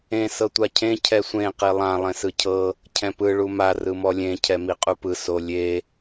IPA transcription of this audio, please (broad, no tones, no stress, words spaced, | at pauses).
ẽ sɤtʷacʰẽ cʰɛsʷẽ qilˠã lˠẽsɯcʰɤ | cʰɛ̃pɯ ɭuma rɯmɔlʲẽ cʰɛmiqʼupɯ solʲe